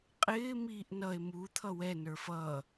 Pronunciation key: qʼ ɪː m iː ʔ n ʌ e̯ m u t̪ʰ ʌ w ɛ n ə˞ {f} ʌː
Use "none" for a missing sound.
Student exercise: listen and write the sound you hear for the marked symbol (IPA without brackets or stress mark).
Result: f